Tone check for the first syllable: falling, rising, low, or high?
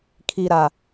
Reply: low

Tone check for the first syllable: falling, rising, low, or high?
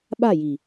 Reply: falling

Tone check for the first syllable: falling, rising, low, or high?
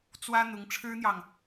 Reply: high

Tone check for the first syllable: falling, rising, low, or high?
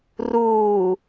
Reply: low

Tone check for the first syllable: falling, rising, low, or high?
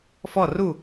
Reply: falling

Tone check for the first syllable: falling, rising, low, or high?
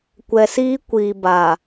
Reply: low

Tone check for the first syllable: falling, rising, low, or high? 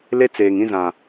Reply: high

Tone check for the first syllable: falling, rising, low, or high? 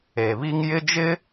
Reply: low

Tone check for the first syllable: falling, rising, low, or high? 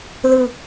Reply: low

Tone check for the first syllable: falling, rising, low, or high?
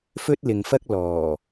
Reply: high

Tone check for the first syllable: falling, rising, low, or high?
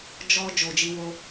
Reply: high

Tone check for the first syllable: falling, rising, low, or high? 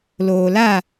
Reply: low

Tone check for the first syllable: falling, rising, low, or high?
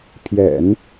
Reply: low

